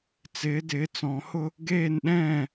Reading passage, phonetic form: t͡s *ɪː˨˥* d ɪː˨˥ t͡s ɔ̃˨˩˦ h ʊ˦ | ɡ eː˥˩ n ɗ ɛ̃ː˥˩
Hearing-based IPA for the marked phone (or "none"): ɪː˨˥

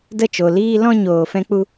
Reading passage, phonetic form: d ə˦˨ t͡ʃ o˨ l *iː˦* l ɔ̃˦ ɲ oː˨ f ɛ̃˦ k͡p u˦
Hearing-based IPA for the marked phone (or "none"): iː˦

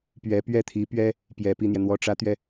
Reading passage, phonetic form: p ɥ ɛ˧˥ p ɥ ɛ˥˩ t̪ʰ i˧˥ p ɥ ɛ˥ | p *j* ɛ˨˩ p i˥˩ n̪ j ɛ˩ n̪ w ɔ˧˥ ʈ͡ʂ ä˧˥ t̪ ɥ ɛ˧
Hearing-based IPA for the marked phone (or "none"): j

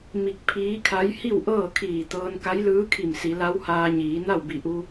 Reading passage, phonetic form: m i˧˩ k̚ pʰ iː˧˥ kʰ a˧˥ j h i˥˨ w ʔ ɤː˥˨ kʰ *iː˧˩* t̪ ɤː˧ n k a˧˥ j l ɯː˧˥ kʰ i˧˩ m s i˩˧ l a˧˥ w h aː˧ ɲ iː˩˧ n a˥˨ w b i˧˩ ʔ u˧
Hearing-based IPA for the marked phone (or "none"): iː˧˩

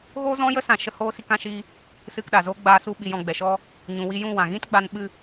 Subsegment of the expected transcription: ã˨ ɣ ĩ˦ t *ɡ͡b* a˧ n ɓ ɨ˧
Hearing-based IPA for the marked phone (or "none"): ɡ͡b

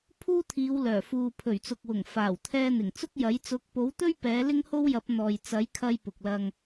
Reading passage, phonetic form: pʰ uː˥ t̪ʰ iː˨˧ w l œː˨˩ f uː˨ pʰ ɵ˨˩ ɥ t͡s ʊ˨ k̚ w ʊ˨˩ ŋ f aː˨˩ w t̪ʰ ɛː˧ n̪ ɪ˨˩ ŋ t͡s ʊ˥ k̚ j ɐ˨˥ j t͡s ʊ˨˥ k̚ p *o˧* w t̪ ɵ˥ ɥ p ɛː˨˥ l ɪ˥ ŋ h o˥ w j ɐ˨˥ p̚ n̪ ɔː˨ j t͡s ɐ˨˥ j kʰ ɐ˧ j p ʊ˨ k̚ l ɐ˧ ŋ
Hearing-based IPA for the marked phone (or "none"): o˨˥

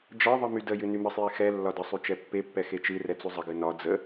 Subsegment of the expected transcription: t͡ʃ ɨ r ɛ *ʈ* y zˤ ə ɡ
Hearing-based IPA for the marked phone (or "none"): t͡s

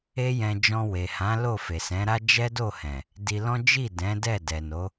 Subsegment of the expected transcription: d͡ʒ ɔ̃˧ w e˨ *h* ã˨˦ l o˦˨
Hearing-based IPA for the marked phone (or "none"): h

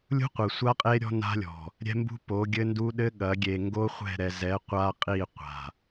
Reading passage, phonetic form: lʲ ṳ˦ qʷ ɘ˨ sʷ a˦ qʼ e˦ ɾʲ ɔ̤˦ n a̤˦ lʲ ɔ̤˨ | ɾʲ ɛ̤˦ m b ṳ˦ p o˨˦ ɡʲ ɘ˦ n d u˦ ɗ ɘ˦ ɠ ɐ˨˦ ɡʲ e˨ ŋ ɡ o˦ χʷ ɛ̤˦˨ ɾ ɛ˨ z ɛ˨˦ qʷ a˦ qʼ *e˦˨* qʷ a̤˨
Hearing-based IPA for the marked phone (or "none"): i˦˨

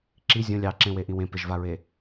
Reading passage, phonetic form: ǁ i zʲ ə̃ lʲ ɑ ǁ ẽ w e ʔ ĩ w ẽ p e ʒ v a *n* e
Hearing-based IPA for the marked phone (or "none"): ɹ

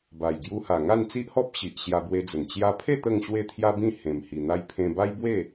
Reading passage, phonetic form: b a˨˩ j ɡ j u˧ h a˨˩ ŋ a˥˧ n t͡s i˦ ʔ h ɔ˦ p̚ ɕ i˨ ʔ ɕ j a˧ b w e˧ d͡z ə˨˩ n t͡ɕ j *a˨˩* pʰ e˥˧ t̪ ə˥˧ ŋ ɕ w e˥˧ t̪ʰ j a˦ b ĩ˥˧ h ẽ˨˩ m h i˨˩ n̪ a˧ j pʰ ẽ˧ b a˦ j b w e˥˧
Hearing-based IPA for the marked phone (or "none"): a˧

